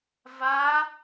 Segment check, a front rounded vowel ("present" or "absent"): absent